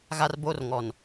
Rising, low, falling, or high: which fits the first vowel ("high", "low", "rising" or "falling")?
high